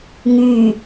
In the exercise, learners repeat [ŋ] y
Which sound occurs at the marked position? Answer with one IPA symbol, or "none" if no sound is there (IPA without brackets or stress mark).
ŋ